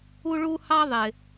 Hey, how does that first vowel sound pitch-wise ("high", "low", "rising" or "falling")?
high